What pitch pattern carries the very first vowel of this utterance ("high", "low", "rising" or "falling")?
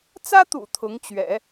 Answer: high